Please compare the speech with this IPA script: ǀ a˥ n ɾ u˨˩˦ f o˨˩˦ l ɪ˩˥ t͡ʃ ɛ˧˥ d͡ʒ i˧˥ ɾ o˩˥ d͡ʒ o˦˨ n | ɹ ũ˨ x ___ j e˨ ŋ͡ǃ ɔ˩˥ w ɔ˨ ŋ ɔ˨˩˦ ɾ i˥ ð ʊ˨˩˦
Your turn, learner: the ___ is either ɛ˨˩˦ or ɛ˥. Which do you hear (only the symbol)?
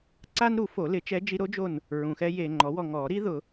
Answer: ɛ˥